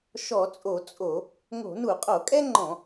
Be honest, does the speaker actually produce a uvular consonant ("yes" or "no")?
yes